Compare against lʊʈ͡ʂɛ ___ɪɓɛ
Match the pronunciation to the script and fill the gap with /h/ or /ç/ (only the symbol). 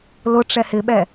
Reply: h